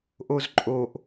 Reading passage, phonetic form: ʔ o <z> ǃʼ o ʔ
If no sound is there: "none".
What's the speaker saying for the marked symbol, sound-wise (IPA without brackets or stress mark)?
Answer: z